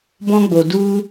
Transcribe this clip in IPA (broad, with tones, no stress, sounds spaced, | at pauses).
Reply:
b ɔ̃˦ ɡ͡b o˨ d u˦